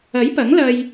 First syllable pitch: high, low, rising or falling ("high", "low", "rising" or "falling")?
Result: rising